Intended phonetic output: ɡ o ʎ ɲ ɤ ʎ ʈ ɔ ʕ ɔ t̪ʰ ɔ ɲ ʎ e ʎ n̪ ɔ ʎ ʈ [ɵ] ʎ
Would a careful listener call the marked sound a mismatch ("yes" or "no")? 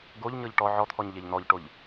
yes